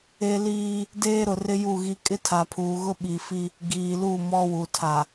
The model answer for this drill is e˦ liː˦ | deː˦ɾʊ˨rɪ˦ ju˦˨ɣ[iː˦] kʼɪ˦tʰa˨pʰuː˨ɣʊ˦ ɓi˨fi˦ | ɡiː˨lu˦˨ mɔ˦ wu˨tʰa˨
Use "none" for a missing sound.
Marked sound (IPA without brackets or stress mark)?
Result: i˦